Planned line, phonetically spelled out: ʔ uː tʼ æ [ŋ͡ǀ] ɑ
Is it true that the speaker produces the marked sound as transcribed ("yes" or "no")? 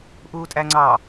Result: yes